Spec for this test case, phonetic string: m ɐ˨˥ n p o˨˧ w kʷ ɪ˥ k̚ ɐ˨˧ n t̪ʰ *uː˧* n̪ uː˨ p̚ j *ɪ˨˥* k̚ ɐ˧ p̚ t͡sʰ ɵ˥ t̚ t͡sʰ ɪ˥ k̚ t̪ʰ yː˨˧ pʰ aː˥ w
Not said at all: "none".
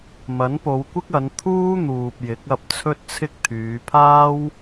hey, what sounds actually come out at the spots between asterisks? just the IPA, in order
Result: uː˥, ɪ˨˥

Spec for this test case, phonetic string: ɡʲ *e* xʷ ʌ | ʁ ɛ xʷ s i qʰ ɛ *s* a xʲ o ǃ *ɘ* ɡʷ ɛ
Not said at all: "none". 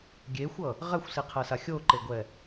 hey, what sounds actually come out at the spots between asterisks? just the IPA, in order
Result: e, s, e

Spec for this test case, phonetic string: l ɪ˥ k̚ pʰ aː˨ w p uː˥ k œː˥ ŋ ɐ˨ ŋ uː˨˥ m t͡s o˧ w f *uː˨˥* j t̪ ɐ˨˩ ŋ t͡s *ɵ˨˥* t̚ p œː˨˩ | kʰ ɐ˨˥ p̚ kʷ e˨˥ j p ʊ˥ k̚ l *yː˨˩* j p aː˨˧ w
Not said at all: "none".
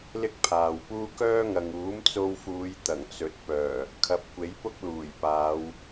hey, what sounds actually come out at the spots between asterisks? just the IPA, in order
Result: uː˨˧, ɵ˨˥, uː˨˩

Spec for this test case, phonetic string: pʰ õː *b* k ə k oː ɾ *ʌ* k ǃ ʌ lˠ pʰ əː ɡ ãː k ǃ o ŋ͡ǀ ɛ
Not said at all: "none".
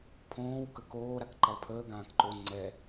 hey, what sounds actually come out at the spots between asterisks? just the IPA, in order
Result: w, a

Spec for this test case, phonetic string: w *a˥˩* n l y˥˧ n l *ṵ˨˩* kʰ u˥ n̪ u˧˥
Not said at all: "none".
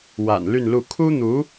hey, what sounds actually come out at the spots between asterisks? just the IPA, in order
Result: a̰˨˩, u˥˩

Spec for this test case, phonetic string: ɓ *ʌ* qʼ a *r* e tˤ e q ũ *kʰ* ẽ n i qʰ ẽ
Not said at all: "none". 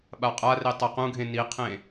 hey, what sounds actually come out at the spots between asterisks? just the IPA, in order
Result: a, r, ɡʱ

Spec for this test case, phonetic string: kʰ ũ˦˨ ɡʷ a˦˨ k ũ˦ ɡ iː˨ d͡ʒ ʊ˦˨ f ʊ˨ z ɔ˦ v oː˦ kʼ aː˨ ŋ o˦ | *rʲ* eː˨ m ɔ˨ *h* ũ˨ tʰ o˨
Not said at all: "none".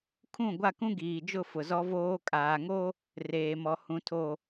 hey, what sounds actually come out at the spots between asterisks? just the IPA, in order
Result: r, h

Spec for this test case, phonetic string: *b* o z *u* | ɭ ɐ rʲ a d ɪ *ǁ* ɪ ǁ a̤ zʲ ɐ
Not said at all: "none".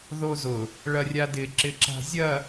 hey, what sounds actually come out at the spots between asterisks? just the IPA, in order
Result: ð, ʊ, ǁ

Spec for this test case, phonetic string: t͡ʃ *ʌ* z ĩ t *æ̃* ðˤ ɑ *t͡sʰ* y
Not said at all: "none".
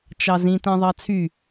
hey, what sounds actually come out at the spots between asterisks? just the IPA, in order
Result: ɑ, æ̃, t͡sʰ

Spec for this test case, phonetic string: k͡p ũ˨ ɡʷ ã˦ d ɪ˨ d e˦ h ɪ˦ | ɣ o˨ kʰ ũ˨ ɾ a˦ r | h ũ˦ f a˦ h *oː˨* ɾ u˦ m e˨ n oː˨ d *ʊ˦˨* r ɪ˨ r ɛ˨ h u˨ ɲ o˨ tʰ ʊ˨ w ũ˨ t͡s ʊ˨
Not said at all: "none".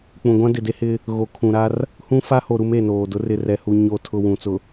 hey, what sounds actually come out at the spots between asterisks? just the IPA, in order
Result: o˨, ʊ˦

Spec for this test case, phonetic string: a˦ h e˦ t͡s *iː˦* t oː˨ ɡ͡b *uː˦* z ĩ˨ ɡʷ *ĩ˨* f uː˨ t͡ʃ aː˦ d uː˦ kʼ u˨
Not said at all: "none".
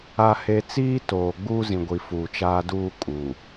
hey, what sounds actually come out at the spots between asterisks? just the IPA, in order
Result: iː˦, uː˦, i˨

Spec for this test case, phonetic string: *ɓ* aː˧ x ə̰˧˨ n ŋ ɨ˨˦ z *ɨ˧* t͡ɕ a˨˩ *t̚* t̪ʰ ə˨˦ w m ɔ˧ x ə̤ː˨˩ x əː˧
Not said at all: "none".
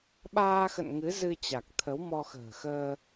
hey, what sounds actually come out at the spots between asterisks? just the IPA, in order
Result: ɓ, ɨ˧, k̚

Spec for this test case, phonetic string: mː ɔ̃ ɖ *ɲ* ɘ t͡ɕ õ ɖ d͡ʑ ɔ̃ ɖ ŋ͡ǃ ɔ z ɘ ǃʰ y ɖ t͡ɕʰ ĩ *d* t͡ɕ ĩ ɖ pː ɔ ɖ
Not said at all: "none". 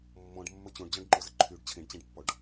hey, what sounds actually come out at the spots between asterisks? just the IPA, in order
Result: mː, ɖ

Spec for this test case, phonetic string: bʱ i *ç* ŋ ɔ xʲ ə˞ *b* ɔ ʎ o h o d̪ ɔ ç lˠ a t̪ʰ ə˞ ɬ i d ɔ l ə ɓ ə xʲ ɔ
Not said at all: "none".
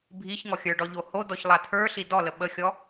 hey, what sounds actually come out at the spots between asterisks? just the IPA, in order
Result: ç, ɖ

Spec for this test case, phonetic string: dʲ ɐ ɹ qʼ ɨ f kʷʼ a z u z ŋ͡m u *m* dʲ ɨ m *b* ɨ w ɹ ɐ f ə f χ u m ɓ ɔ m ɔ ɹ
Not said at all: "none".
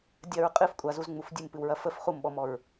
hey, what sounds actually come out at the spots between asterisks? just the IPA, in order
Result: f, p

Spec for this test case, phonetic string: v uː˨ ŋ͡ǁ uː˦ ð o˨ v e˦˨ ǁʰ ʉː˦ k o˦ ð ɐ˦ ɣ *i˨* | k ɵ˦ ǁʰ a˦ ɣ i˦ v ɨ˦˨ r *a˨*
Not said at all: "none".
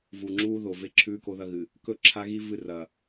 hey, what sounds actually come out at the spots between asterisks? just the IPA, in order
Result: ɨ˨, ɐ˨

